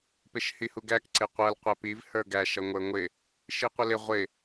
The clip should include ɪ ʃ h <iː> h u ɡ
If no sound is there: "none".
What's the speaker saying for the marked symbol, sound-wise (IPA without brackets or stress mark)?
i